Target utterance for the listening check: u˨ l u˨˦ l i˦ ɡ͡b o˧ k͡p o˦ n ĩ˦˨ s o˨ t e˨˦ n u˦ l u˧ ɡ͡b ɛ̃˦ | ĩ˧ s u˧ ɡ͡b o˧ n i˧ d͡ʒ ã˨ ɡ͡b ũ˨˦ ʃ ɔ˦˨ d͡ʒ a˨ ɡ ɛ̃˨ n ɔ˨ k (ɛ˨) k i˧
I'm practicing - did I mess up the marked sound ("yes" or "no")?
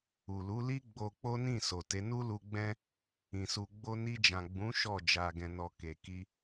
yes